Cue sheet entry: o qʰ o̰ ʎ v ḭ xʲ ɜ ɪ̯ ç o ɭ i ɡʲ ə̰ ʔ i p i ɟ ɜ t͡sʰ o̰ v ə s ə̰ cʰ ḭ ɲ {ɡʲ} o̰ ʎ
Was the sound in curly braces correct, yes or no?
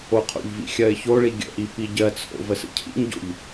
no